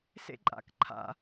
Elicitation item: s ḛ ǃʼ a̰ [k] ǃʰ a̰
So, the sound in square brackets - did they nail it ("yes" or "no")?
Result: yes